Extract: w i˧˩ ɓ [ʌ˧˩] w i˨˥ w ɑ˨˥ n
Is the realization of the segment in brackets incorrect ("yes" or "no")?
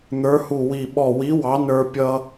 yes